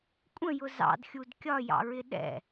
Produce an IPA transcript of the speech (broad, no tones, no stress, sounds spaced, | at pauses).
kʷʼ ə̃ j ʊ z ɑ̰ d xʲ u d kʲ ɒ j ɑ̰ ɹ ɪ ɗ ɛ̰